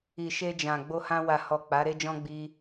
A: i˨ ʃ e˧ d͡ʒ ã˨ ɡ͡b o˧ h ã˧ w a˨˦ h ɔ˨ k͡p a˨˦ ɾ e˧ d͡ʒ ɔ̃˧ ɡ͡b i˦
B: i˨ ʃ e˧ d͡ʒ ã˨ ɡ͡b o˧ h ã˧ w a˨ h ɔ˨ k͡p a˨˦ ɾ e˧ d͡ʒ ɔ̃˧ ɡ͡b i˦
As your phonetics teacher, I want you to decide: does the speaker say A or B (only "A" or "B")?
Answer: B